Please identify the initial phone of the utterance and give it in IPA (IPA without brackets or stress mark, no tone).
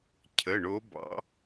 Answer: cʰ